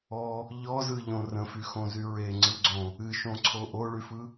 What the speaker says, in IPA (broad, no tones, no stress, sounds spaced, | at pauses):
ɔ | ʎ ɔ z ɯ ʎ õ r ə̃ f y x õ z y ɹ e ŋ͡ǀ ɯ ɡ͡ǀ õ | ɨ ʃ õ ǀʰ o ʔ o ɭ y f ɯ